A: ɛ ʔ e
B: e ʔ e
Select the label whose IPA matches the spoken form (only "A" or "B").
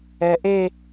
A